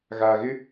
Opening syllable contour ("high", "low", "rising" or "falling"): low